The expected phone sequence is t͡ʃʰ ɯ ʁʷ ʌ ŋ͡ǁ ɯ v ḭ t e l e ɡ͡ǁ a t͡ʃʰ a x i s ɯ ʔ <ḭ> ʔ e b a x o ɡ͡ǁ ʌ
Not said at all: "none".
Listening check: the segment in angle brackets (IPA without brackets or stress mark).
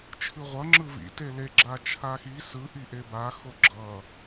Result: i